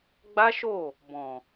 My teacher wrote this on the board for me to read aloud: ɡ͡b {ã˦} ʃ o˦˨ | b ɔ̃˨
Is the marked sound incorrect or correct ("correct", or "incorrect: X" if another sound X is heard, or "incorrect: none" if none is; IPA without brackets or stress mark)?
incorrect: a˦